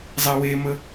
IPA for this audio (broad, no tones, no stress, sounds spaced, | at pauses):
zˤ ɛ w e m ə